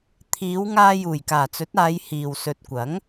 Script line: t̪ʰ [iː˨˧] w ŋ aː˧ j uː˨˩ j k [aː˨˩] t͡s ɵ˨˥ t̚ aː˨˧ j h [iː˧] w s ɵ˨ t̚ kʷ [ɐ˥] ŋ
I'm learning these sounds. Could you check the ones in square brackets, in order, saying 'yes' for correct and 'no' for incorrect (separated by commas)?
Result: yes, yes, no, no